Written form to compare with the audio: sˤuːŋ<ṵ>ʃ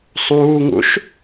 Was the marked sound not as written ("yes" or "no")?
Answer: no